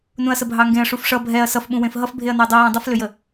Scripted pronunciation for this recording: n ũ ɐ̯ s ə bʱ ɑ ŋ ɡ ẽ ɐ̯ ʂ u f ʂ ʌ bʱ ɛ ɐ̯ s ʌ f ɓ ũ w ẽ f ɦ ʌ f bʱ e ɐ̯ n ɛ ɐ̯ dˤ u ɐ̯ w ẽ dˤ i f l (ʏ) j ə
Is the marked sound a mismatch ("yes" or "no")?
no